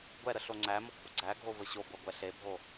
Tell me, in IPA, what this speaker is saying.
ɡʷɛɾəɬ oŋ͡ǀæmo kʷʰəɡ͡ǀæɡʱo vəɕoɡʷa ɡʷɛɬebʱo

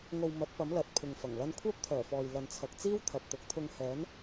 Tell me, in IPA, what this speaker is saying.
ŋo˨w mɐ˨˥t̚pɐ˨˥m lɐ˨t̚pʰɪ˨ŋ fɐ˨˩ŋlɐ˥n kʷʰœː˥p̚t̪ʰœː˨˩fɔː˨j lɐ˨nt͡sʰɐ˨k̚t͡siː˥w t̪ʰɐ˨p̚ t̪ʊ˨˥k̚t̪ʰʊ˧ŋ hɛː˨˥n

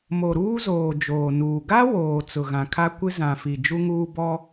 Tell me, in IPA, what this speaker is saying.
mo˨ɾuː˦zoː˨ d͡ʒoː˨nuː˨ ɡa˦woː˨ t͡sʊ˨ɣã˨ kʰa˦kʷɪ˦ zã˨fi˨ d͡ʒu˦ŋuː˦ bɔ˦

